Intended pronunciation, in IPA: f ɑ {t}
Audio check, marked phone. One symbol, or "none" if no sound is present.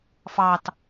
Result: t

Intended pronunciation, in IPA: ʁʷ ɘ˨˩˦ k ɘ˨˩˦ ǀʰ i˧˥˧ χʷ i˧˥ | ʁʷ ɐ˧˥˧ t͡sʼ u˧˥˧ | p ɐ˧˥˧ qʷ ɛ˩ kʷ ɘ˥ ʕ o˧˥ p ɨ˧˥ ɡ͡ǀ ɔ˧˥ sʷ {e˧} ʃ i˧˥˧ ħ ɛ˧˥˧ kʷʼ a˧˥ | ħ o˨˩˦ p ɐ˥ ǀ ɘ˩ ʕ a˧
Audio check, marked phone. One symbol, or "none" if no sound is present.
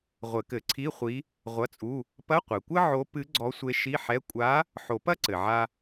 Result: e˧˥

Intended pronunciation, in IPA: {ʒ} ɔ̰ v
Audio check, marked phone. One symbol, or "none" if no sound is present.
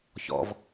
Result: ç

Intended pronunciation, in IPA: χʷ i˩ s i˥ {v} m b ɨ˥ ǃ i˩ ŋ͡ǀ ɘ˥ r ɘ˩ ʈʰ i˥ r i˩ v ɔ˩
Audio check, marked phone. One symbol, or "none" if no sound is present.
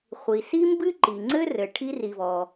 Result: none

